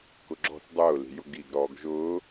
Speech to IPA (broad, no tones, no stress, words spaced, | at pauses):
kʊɡ͡ǁɔ̤θ dˤʊːli̤ jʊɡiːɡ ɾɔːɡʒʊː